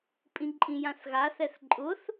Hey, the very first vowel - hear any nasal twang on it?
yes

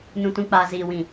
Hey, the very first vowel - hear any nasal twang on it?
yes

